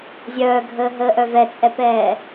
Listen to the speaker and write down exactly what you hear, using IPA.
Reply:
zʲœːɡʱəːɦəːʔœ vɛt͡sʼɛpɛː

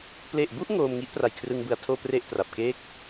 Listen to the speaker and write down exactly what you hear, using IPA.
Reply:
ple˨˩ʔbu˥˩ʔ ŋoː˧mŋi˦˥ʔpra˨˩jkʰrɯ˧ŋ bɯ˧a̯tʰoː˥˩pre˥˩ʔtra˨˩p̚ ke˦˥k̚

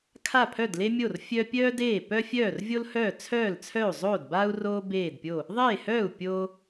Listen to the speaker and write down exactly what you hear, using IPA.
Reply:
kʰa˥˩pʰœ˥˩dle˥mʲo˥˩r fʲœ˥ pʲœː˥deː˥˩ pœ˥fʲœː˥˩rvʲo˥lhœː˥˩ t͡sʰœː˥˩lt͡sʰœ˥˩u̯zˤoː˥˩dbaː˥u̯ roː˥ beː˥˩dpʲo˥˩ | ðˤeː˥˩hœː˥˩u̯ pʲoː˥

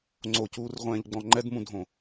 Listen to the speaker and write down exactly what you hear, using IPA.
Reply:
ŋ͡ǀocuːrʁʷɛ̃ːʎɡ͡bɔ̃ ŋ͡ǃɛdmũdʱõ

